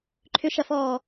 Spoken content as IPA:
ǃʰ ʏ ʃ ɐ f ɔː

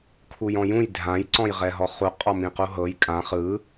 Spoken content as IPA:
kʰ u j ɔ̃ j ũ j dʱ ã j ǀ ɔ̃ j ʁ ɛ ɦ ɔ χ u qʼ ɔ m ĩ q u ɦ ɤ j kʼ ã χ ɯ

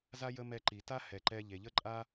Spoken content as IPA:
z a˥ j ə˥ m ɛ˧ ǃ i˩ t a˥ h ɛ˩ ǃ ɛ˧ ʎ e˩ ʎ ə˥ ǃʼ a˥

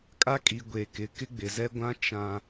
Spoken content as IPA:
kʼ a˦ kʼ i˨ ɡʷ e˨ k ɪ˨˦ k ɪ˦ ɡ͡b ɪ˨ z ɛ˦ ɡʷ ã˦ t͡ʃ ã˨

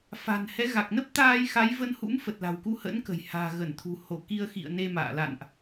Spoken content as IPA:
f a̤˨˩ n h ɛ˨˦ ɣ a˨˩ k̚ n ə˦˥ p̚ t̪ aː˧ j x a˨˦ j v ə˧ n h ṵ˧˥ m f ə˨˩ t̚ l a̤˨˩ w k u˧ h ə̰˧˥ n k ə̤˨˩ j h a̤ː˨˩ ɣ ə˧˩ n t̪ʰ ṳ˨˩ h o˧˩ k i˧ ə̯ x ḭ˧˨ ə̯ n e˧ m a̰ː˧˨ l a̰˧˨ n ʔ

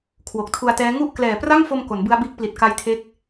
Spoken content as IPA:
kʰ w o˨˩ k̚ tʰ u˧ a̯ t ɛː˦˥ ŋ u˥˩ ʔ k l ɛː˨˩ p r a˥˩ ŋ f o˧ m k o˩˦ n b ɯ˦˥ a̯ b iː˦˥ k̚ p l i˨˩ t̚ k a˦˥ j tʰ e˦˥ k̚

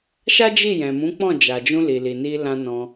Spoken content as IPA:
ʃ a˦ d͡ʒ i˦˨ j ɛ̃˨ m ũ˨˦ k͡p ɔ̃˦˨ d͡ʒ a˨ d͡ʒ ũ˧ l i˨ l i˨ n i˧ l ã˧ n ɔ̃˧

